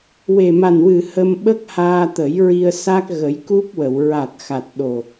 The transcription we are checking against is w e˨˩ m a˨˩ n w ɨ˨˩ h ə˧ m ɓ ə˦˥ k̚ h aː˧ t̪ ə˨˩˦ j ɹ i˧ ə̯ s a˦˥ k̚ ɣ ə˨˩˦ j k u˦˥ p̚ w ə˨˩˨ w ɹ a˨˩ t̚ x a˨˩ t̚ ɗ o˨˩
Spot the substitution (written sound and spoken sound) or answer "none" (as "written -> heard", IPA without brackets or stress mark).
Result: none